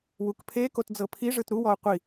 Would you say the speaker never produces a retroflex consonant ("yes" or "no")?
no